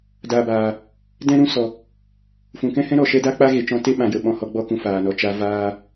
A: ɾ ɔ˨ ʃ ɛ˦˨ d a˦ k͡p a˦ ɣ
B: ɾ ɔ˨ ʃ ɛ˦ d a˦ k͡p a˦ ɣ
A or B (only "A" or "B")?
B